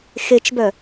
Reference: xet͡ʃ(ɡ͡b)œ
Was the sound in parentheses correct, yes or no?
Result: no